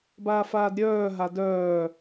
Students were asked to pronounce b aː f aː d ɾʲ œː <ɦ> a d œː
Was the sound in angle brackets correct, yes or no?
yes